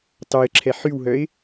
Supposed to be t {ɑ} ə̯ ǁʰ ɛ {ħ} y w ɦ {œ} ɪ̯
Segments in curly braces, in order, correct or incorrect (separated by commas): correct, correct, correct